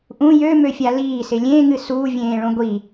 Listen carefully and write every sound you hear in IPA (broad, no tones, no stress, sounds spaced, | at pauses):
ʔ ũ j ø m ø fʲ a l iː s ɪ lʲ ẽː ŋ ɨ s uː vʲ ẽː ɭ õ ɡʷ i